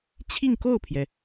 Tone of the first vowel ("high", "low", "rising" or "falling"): falling